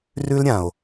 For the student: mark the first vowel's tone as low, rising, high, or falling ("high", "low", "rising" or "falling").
high